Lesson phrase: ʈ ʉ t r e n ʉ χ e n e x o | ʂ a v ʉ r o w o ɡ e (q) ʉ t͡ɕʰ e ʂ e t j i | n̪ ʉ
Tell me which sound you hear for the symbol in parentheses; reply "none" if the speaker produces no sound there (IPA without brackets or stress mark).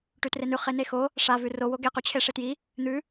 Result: q